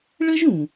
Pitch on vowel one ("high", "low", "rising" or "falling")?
high